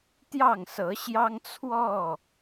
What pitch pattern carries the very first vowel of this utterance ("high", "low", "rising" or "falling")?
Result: falling